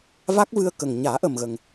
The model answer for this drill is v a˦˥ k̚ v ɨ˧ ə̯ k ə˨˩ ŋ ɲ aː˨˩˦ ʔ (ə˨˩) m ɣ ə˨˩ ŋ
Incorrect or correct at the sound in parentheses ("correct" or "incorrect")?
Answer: correct